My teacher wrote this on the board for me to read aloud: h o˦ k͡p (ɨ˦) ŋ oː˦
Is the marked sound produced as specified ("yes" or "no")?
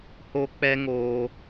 no